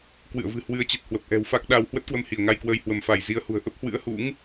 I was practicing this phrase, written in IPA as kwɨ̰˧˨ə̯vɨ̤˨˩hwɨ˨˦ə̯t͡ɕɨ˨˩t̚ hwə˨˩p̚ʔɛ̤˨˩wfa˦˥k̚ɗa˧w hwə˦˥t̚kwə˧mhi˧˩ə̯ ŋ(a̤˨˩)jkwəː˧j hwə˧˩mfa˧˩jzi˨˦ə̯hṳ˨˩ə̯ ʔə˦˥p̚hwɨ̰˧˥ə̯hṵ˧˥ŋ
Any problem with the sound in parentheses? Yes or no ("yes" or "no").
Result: yes